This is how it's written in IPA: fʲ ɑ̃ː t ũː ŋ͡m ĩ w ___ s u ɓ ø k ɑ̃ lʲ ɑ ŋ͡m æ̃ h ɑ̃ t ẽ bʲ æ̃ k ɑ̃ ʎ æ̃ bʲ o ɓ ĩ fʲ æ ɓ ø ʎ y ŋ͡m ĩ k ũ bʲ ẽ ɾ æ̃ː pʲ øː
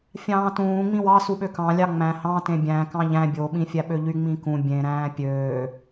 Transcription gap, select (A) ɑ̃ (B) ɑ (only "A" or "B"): B